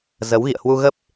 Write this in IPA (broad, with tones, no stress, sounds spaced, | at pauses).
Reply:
z ə˨˦ w ɣ ḭ˧˨ ə̯ h w u˧ ɣ ə˦˥ p̚